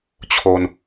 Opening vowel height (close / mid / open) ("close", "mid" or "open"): mid